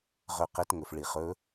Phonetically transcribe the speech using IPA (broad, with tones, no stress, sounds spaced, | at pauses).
ʁ ɵ˧˩ q e˨˥ t ŋ ɵ˩ f ɭ i˩ χ ɵ˨˥